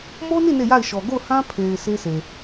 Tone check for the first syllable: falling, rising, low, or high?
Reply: high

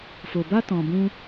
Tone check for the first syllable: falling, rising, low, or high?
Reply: low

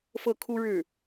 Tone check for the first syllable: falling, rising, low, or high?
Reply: falling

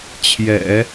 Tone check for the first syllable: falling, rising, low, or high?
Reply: low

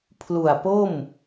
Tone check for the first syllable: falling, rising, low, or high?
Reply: low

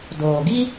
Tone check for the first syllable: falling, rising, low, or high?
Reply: low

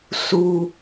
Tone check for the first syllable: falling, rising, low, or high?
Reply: low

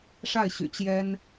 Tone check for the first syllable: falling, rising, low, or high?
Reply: falling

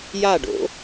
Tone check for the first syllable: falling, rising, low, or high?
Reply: falling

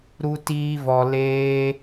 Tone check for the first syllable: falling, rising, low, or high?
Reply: high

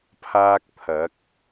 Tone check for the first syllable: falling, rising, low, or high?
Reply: high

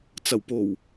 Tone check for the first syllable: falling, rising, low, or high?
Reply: low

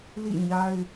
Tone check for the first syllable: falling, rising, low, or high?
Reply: falling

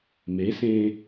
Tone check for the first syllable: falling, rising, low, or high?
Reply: rising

